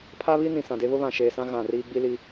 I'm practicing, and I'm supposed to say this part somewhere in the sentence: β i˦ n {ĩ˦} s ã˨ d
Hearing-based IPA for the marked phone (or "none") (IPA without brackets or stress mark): ĩ˨